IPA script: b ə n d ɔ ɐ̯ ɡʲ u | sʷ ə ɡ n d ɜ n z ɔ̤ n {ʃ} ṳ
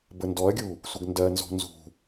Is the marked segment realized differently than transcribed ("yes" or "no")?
yes